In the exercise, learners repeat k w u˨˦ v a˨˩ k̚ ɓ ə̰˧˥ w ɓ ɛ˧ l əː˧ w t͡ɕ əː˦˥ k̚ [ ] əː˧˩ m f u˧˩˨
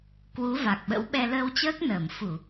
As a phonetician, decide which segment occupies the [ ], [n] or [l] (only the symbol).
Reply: n